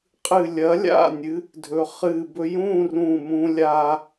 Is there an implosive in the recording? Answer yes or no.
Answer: no